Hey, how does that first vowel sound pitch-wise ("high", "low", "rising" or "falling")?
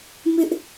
high